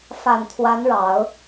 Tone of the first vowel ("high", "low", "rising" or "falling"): low